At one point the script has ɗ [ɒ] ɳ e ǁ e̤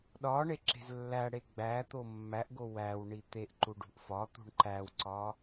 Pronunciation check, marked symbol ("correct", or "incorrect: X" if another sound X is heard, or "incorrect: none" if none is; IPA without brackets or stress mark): correct